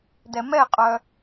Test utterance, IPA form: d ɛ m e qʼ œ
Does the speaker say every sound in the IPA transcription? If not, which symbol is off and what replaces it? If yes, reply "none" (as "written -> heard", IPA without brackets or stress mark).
e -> ɛ